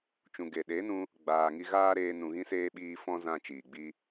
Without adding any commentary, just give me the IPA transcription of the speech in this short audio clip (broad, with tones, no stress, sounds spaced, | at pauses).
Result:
t͡ʃ ũ˨ ɡ e˨ ɗ e˨˦ n ũ˧ | ɡ͡b aː˨ ŋ i˧ ɣ aː˦ ɾ eː˧ n ũ˨ ɣ ĩ˧ s eː˧ ɓ iː˧ f ɔ̃˦ z ã˧ t͡ʃ iː˨ ɡ͡b i˦